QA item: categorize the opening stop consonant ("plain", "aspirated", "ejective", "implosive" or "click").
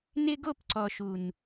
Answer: plain